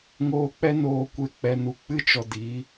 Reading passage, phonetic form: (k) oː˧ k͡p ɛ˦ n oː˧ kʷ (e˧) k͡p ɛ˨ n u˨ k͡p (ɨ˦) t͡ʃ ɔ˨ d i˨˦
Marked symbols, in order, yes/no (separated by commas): no, yes, yes